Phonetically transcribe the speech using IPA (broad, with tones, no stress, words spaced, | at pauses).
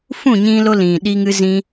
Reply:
fũ˦˨ɲĩ˧lo˧ lĩ˨ ɗi˧ŋɨ˧zĩ˧